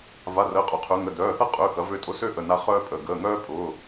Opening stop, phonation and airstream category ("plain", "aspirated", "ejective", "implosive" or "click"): ejective